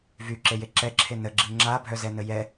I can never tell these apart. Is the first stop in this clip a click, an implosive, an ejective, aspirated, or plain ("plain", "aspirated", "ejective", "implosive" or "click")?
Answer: click